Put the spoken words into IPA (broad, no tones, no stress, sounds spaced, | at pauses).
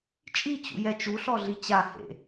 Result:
t͡ʃʼ i t͡ɕ ṵ j ɛ t͡ʃ u ɬ ɔ ɮ i t͡ɕ a h ḛ